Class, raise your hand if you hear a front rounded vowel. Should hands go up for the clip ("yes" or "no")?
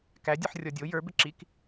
yes